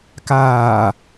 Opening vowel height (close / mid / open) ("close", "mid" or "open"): open